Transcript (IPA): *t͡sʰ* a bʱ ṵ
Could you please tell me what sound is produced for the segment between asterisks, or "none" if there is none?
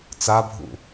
t͡s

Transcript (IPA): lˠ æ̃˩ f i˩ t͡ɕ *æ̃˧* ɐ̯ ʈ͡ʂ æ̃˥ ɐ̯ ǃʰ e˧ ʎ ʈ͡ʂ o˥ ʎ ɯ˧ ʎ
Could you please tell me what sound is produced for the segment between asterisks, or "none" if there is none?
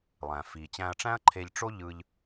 æ̃˧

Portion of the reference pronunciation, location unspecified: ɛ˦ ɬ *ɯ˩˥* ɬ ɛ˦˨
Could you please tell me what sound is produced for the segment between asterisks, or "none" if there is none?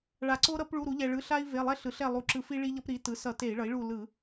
ɯ˩˥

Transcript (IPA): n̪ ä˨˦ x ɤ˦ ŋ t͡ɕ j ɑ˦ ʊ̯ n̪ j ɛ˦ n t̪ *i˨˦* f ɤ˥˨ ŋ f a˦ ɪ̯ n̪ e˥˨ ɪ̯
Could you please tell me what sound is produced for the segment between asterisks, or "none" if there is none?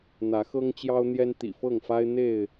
ḭ˨˩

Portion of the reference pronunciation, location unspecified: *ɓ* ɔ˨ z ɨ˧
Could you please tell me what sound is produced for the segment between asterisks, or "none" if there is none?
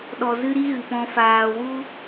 ɗ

